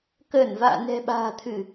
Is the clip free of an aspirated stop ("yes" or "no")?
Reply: no